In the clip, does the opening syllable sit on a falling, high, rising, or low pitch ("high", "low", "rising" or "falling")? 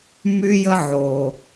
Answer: high